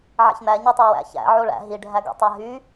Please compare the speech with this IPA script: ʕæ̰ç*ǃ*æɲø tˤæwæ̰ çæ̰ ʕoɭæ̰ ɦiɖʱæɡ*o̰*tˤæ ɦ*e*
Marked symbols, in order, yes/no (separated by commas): no, yes, no